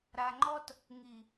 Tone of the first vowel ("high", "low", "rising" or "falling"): low